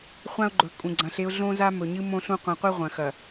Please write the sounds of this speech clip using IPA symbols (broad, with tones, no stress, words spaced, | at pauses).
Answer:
χʷã˦ʊ̯ɡ͡ǃɵ˨ kʼũ˨ɡ͡ǀɐ̃˨˦ɬe˦ʊ̯ ɮõ˦za˦mɵ˨ɲɨ˦ mõ˦ ɬũ˦qʷɐ̃˨˦qʷi˦ ʁʷɐ̃˨xɐ˨